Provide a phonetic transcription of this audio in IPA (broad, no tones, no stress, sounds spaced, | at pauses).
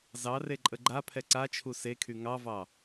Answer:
z ɑ r e ǃʼ ə ɡ͡ǃ a pʰ ɛ ǀ a t͡ʃʰ u s e kʰ y ŋ ɑ v ɑ